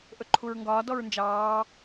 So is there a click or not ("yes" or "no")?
yes